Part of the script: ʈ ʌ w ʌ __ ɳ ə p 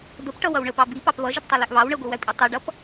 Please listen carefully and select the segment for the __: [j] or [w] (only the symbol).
w